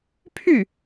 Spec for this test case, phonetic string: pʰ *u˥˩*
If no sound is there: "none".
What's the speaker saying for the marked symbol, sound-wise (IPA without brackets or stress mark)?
y˥˩